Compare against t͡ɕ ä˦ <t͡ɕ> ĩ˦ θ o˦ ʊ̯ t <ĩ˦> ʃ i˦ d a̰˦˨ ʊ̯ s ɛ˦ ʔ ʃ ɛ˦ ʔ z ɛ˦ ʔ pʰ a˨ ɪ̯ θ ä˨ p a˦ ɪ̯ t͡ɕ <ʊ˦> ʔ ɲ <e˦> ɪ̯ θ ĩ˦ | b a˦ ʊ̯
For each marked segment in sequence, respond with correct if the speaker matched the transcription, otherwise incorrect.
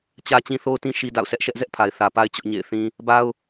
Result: correct, correct, correct, incorrect

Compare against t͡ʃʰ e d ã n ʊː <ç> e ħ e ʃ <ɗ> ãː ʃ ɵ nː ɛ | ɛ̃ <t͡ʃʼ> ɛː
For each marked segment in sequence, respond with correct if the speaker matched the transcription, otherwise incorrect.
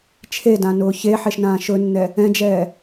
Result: correct, incorrect, incorrect

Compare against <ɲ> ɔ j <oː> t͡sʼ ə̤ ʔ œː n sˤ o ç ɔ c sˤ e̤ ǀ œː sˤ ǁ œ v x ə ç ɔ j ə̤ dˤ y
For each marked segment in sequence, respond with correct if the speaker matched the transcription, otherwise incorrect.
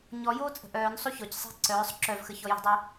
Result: correct, correct

